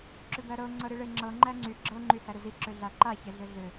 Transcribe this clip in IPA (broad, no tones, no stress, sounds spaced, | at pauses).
ǁ ʏ b æ ɾ ɤ ŋ͡ǀ ɤ ɾ i ɭ e ŋ͡ǁ ɤ ŋ͡ǃ æ ŋ͡ǀ y ɡ͡ǁ ɤ ŋ͡ǃ y h æ ɾ ʏ z i ǁ ʏ ɮ a ǃ a ç e ɮ ʏ ɮ ʏ